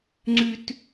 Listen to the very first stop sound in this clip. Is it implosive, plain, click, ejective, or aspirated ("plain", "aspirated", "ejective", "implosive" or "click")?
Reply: click